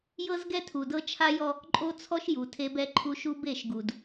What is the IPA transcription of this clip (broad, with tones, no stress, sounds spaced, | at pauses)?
j ɤ˦ z ɡ ɛ˦ tʰ u˨ d ɤ˦ t͡ʃʰ a˦ j ɔ˦ | ǃʼ o˦ t͡sʰ ɔ˦ ʃ j u˨ tʰ e˦ b ɛ˦ ǃʰ u˦ ʃ u˦ b e˦˨ ʃ ɡ u˨ d